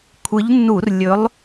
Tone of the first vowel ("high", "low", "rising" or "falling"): rising